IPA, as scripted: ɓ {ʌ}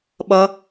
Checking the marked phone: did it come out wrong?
no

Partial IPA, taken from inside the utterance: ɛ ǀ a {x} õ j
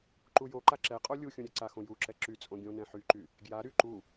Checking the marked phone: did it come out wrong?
no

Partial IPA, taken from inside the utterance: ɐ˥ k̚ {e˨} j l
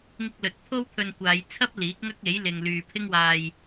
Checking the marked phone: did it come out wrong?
yes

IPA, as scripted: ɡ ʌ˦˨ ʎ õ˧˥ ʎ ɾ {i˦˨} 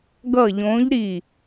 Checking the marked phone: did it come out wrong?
no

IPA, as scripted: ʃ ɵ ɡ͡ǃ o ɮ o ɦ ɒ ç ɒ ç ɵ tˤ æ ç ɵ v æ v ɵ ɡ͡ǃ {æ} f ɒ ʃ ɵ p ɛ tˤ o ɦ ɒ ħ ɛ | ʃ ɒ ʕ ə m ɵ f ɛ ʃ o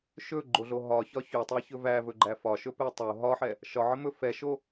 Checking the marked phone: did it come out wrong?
no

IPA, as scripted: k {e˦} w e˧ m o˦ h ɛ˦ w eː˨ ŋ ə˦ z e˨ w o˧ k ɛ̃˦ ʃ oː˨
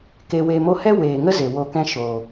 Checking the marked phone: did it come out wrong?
yes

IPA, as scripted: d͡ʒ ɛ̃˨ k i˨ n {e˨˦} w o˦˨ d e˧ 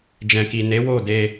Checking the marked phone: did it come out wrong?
no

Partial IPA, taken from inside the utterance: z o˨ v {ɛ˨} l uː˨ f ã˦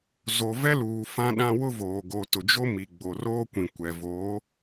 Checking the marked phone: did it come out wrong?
yes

